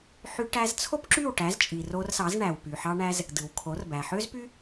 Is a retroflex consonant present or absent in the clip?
present